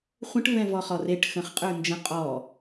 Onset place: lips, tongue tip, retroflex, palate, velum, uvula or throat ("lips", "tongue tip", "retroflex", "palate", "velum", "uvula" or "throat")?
uvula